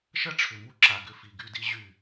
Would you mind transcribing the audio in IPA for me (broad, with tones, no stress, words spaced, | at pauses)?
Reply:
ʃɐ˦ʈ͡ʂʰʏ˨mu˦ǁa˨ ɡʏ˦fi˨ɡy˦di˦ ʑy˦˨